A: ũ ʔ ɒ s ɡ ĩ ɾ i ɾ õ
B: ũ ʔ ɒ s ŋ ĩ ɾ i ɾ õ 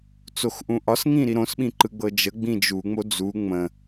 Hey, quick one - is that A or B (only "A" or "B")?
B